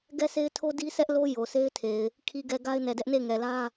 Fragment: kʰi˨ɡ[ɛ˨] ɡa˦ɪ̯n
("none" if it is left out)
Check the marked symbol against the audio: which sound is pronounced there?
ɛ˨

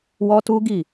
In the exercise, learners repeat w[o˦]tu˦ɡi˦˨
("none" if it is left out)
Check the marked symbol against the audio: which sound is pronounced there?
ɔ˦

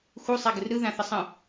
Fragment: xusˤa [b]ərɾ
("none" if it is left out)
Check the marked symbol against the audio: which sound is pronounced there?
ɡ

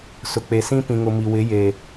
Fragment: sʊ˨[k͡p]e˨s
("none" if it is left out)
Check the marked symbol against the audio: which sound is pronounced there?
k͡p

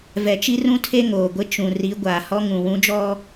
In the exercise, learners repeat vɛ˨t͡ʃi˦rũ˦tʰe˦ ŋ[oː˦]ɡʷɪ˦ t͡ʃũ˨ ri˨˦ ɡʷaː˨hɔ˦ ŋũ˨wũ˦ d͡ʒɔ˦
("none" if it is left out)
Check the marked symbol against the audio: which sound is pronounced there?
oː˨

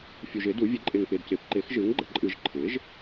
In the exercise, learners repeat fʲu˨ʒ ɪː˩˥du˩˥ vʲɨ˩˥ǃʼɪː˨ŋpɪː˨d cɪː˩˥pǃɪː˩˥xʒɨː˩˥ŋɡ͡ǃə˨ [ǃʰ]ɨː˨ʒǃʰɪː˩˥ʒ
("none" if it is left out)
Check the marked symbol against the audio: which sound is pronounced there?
ǃʼ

